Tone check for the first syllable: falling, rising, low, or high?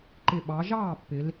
low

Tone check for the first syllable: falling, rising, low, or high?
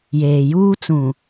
low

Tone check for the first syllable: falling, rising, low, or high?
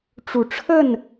low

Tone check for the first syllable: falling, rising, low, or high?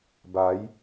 rising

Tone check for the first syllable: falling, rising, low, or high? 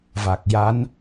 low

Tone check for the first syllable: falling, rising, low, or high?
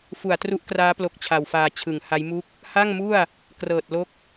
low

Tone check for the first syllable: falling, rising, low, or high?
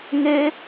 high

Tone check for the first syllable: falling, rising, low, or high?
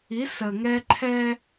rising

